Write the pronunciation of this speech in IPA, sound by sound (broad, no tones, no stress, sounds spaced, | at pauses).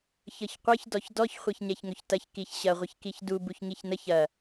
ç ɤ ç qʷ ɤ ç d ɔ ç d ɔ ç χʷ ɤ ç ɲ ɛ ç ŋ ɵ ç t ɐ ç k i ç ɕ ɐ ʁʷ ə ç k i ç d u b u ç ŋ i ç n ə ç ɐ